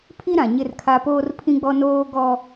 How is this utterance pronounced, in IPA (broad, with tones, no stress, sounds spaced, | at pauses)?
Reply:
pʰ i˦ ɾ ã˨ ɲ ɪ˦ r kʰ a˦ p oː˦ r pʰ ĩ˦ ɡ͡b ɔ˦ n oː˦ ɡ ɔ˦